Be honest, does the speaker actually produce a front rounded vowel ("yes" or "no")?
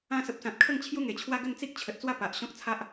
no